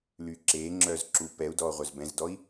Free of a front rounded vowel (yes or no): no